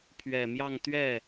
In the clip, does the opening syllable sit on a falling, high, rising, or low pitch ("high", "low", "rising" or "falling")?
low